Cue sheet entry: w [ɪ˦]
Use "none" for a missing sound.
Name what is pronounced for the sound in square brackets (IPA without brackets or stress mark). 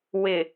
ɪ˨